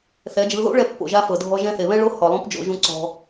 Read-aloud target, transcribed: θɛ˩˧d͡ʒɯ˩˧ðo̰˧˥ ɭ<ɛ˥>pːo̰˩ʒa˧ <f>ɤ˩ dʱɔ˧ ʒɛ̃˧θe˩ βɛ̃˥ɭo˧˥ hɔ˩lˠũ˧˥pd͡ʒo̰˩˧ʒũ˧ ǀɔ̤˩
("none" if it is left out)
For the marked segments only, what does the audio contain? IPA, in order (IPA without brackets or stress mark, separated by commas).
ɛ˧, f